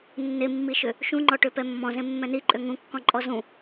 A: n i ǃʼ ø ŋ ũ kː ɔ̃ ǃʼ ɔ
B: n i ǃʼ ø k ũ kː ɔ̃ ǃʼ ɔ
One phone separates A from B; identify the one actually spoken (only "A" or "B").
A